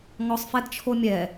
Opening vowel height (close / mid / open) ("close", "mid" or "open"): mid